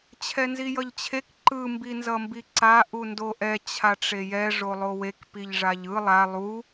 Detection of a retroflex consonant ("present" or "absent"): present